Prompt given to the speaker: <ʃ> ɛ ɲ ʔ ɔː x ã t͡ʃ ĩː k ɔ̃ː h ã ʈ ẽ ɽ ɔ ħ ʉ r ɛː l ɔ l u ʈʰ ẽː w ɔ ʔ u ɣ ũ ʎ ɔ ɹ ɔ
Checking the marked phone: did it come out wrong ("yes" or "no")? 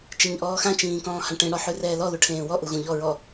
yes